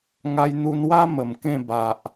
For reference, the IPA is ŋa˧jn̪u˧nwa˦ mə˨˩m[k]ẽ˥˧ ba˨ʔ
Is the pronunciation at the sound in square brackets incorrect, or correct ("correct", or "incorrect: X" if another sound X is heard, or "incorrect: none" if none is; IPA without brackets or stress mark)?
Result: correct